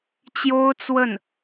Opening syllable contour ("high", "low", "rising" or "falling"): high